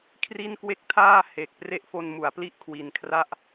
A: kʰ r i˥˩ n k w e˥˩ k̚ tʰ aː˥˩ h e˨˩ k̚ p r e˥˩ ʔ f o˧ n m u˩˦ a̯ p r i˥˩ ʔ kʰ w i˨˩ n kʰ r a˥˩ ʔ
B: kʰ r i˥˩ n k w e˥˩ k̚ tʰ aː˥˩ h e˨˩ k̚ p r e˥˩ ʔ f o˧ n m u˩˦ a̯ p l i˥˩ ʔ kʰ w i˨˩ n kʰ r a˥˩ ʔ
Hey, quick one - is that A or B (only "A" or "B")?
B